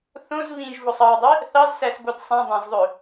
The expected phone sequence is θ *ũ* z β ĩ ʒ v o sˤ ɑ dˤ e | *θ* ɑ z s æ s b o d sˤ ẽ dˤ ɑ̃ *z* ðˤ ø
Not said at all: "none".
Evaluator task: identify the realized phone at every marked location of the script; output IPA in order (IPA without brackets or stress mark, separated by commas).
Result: õ, θ, z